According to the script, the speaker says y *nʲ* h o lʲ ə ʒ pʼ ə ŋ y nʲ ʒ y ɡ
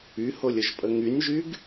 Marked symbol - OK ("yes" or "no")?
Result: no